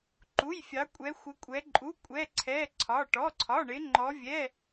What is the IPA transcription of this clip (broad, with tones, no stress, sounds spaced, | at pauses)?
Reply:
ǃ u˩˧˩ j fʲ ɑ˩˧ kʷʼ ɛ˩˧ xʷ ɪ˩˧ kʷʼ ɛ˩˧ ǃʼ u˩˧˩ kʷʼ ɛ˩˧˩ ǀʰ ɛ˩˧˩ ǀʰ ɒ˩˧˩ ʈ ɔ˩˧˩ ǀʰ ɒ˩˧˩ ɳ ɪ˩˧ ŋ͡ǃ ɔ˩˧ vʲ ɛ˩˧˩